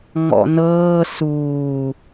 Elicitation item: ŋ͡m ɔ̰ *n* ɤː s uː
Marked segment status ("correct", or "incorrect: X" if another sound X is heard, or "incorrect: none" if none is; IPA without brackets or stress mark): correct